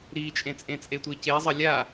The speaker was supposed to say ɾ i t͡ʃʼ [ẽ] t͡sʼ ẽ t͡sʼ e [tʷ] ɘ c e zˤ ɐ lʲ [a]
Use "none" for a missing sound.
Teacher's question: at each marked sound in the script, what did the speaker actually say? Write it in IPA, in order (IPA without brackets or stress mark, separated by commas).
ẽ, tʷ, a